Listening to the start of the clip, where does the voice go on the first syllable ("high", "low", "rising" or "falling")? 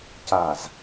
low